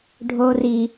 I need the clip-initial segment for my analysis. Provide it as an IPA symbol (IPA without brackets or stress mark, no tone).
ɖʱ